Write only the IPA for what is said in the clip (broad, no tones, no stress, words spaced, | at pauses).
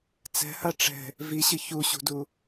t͡sɛ̤ha ʈ͡ʂɛ̤ | viɕɨ çuɕṳdu